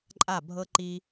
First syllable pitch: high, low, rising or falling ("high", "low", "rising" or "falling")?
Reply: falling